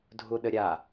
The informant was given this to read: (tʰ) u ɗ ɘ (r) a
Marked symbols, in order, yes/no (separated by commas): no, no